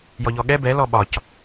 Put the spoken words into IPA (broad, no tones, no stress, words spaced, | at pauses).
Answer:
jɔʎɔɠɛ bɛlɔ ɓɒc